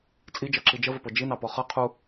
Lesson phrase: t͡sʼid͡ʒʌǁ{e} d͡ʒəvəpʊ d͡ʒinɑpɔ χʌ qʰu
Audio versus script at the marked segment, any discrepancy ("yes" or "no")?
yes